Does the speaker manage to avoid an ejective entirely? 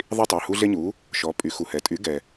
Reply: no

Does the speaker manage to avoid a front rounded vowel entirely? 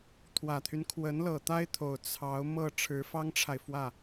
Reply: no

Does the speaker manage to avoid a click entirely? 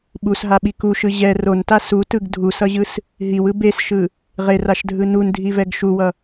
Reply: yes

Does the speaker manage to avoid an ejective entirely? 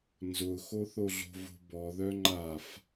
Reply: yes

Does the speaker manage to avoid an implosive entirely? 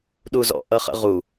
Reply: no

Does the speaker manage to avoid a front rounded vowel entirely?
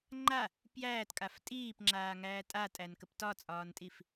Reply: yes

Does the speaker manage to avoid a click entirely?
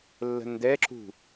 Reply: no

